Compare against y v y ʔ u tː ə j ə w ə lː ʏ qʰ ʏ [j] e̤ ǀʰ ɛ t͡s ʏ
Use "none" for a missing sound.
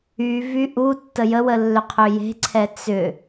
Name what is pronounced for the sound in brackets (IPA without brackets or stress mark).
j